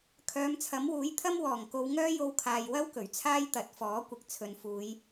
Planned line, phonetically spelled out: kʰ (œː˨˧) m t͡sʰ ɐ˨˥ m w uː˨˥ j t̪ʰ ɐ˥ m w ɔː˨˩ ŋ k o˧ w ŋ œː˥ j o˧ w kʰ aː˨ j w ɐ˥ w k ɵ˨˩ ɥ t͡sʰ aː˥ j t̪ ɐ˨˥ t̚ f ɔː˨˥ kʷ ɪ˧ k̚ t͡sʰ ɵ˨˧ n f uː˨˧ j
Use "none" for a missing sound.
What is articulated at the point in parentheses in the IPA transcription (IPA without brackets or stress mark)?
œː˨˧